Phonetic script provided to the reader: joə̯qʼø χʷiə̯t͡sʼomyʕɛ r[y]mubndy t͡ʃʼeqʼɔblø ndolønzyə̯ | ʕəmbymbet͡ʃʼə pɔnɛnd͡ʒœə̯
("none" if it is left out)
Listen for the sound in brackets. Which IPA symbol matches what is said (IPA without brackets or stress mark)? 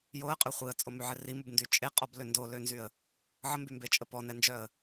i